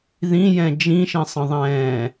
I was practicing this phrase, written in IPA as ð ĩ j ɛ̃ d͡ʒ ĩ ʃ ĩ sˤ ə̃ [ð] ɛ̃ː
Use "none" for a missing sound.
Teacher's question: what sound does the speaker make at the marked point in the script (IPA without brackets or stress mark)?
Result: ðˤ